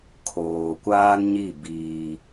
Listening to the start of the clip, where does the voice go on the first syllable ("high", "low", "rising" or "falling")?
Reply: low